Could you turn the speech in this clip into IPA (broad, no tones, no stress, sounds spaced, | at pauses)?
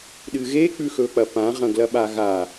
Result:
ɗ ɨ ɣ e k͡p ʉ x ɵ k͡p ɐ p ã ʁ ɐ̃ ɡ l ɐ ɓ a ɣ a